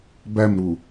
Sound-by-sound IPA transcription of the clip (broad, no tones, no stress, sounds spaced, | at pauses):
b æ m ɾ u